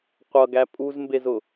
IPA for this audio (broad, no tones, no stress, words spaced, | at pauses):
qʷʌɡæ pʼuzmbezʊ